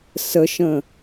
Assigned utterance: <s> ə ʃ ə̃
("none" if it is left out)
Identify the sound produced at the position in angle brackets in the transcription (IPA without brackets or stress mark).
s